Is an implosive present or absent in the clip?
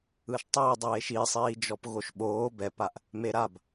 present